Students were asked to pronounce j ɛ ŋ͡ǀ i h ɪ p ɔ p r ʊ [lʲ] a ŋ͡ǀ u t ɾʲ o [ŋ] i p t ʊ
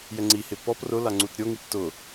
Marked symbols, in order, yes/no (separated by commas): no, yes